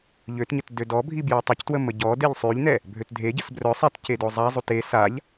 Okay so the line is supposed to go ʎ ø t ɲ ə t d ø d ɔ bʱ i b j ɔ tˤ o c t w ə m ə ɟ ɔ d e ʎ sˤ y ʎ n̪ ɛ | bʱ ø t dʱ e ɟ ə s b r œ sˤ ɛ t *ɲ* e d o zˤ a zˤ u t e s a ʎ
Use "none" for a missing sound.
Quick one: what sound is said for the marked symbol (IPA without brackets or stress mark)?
c